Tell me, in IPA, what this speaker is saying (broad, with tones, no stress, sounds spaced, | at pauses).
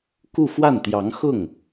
k u˥˧ f w a˥˩ n t̪ j ɑ˧˥ ŋ x ʊ˥˩ ŋ